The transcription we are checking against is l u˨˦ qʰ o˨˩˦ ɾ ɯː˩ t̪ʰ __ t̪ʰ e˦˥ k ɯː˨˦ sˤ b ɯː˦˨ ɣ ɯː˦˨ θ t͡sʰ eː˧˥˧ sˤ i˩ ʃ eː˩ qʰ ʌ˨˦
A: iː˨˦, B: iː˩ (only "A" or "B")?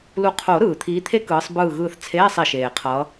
A